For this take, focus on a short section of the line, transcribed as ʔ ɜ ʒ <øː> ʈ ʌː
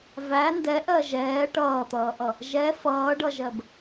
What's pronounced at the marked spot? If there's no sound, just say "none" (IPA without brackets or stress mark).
ɛː